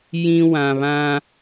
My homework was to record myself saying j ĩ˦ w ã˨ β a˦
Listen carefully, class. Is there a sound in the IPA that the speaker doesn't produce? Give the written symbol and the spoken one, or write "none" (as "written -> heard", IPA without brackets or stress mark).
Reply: a˦ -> ã˦